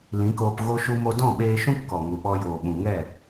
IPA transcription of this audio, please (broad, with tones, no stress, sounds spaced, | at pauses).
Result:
l ĩ˨˦ k oː˧ p ɣ o˧ ʃ u˧ m o˧ d ɔ̃˦˨ ɓ eː˧ ʃ ũ˦ p k ɔ˨ ŋ u˨ ɓ ɔ˧ j oː˨ ɓ ũ˨ ŋ ɛ˦˨